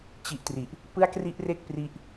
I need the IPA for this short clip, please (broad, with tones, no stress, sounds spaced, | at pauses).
t͡ɕ i˦˥ ʔ t r i˨˩ ʔ | p ɯ˥˩ a̯ k r i˥˩ ʔ r e˥˩ k̚ p r i˦˥ ʔ